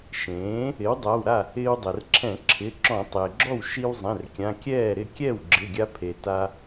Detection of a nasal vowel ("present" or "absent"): present